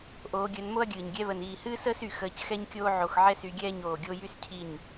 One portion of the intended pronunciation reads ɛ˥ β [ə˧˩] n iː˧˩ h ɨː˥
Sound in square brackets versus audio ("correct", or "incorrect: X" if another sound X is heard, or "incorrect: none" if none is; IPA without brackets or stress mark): correct